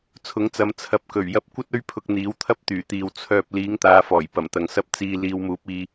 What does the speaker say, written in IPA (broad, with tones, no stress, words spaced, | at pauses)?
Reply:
t͡sʰʊ˨˥ŋt͡sɐ˨˧m t͡sʰɐ˨p̚kɵ˨˩ɥjɐ˧p̚ kʷɐ˥t̚ɵ˥ɥ pʰʊ˧k̚n̪iː˨˥wt̪ʰɐ˥p̚ t̪yː˨˩t̪iː˨w t͡sʰœː˧p̚ liː˨˥ŋt̪aː˨˧fɔː˨˩j pɐ˨˩mt̪ɐ˨ŋsɐ˥p̚ t͡siː˧ liː˨˧wmuː˨˥p̚ iː˧